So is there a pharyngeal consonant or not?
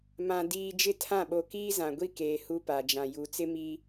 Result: no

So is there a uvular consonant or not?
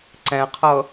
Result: yes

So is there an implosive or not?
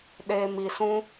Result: yes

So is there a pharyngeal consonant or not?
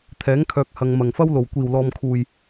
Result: no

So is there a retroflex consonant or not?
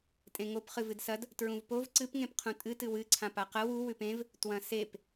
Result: no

